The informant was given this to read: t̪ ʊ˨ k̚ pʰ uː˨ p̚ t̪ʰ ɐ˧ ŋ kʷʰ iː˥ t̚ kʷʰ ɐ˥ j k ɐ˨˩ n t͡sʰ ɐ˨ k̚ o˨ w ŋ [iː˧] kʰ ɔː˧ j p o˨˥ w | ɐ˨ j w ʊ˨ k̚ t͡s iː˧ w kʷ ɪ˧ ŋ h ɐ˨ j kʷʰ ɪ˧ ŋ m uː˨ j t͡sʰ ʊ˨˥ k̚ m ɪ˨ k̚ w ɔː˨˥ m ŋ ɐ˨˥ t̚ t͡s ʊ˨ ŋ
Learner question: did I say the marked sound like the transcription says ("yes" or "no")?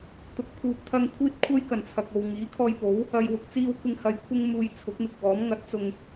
no